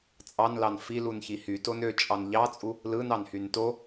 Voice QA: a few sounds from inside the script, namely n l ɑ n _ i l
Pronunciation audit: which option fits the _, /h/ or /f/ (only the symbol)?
f